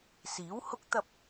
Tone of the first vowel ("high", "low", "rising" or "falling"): rising